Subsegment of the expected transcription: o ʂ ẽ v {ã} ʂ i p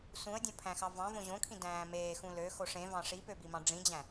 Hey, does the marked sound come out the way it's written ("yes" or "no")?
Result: no